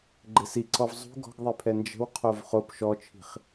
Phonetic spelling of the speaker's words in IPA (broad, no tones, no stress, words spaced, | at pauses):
ɡ͡ǃɪsiǀɔv zˤṳ ɡɔ̤ɡðˤipʰɛ nd͡ʒə̤wqʰov χop ʃɔt͡ʃʰi̤χ